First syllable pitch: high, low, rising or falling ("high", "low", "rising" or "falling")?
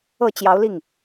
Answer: low